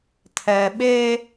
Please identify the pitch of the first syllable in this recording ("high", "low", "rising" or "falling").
low